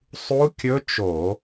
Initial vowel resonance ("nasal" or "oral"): oral